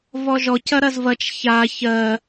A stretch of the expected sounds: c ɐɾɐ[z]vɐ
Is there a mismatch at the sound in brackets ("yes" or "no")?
no